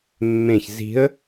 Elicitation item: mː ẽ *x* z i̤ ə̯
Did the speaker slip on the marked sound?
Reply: yes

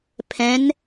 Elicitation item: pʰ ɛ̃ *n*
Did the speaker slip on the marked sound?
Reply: no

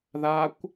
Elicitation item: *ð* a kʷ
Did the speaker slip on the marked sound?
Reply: no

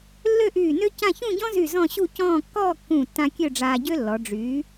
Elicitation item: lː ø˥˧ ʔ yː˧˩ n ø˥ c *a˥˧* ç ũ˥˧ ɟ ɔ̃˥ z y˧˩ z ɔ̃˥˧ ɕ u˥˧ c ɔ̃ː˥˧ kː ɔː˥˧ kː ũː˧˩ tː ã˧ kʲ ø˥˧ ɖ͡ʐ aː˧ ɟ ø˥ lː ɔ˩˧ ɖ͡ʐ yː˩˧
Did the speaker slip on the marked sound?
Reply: yes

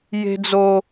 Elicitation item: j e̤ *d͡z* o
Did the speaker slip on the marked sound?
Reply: no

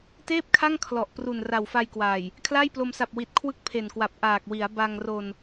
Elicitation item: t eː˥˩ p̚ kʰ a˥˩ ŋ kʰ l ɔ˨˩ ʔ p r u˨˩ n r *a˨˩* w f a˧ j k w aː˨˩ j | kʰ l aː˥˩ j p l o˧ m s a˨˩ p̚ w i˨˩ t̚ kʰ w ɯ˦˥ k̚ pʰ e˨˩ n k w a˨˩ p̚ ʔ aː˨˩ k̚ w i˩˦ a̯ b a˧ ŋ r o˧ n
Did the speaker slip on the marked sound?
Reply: no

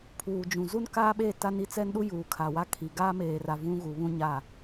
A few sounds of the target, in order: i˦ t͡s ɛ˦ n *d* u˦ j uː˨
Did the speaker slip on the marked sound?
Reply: yes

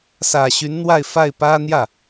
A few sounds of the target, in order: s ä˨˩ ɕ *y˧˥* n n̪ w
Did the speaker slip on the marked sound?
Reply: no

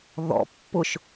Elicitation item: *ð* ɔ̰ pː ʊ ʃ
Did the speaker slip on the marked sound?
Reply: no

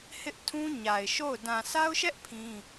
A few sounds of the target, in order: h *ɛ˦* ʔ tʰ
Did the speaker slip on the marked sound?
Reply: yes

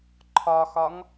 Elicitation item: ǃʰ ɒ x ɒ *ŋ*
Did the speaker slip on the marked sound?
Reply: no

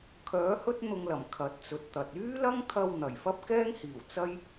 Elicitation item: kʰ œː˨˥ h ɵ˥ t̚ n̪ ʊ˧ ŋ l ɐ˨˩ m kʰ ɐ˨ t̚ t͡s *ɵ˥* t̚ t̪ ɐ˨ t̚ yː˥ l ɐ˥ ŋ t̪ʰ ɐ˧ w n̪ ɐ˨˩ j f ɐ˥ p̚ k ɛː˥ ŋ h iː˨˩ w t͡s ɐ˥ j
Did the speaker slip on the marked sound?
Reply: yes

